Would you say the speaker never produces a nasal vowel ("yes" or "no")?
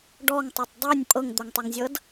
yes